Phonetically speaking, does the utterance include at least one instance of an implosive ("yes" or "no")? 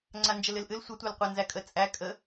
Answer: no